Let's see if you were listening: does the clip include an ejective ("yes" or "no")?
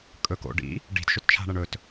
yes